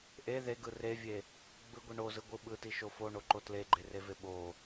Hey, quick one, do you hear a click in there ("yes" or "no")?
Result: yes